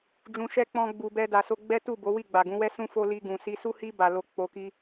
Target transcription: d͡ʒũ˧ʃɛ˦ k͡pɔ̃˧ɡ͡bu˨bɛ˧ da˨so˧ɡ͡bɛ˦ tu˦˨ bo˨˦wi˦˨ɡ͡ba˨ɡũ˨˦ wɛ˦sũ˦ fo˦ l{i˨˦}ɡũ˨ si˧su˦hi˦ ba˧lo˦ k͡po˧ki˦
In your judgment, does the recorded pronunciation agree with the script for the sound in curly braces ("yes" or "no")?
no